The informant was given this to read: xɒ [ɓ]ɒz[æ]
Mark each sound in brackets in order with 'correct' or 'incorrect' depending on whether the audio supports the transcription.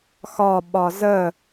correct, incorrect: ə

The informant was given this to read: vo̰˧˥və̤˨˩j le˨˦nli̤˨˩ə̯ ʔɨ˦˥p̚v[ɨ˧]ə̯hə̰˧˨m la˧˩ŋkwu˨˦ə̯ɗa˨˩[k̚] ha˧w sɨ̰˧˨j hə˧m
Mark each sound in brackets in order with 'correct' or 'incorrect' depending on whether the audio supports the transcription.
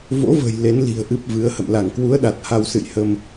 incorrect: ɨ˨˦, incorrect: t̚

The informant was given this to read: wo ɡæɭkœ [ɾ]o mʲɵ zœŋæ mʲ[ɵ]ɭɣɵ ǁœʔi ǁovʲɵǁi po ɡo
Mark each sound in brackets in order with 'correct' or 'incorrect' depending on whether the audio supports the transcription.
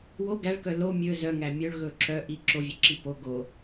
incorrect: l, correct

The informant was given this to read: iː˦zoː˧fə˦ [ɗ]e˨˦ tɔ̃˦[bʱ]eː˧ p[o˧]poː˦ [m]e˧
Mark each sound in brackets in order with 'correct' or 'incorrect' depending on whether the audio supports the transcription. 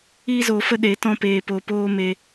correct, incorrect: p, correct, correct

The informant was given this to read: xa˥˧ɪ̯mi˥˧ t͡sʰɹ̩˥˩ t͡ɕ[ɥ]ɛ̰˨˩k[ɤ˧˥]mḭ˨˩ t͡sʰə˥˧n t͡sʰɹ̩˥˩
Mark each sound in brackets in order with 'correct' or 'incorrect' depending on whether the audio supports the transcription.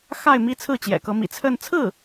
incorrect: j, correct

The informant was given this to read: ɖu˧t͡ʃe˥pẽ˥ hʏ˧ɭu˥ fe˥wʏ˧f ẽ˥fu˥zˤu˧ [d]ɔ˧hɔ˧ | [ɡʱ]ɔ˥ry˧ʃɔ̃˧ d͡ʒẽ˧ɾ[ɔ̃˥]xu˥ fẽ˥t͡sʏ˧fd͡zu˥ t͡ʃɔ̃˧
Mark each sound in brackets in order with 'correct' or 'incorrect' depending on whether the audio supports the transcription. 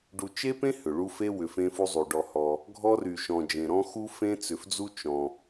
incorrect: ɖ, correct, correct

